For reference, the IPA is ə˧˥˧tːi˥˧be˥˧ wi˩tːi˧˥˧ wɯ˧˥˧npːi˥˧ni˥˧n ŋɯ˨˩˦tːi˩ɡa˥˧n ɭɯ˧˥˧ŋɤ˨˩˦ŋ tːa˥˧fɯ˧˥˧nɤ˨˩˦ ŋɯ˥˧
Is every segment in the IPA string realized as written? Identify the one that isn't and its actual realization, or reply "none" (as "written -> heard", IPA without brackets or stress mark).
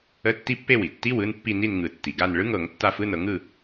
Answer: b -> pː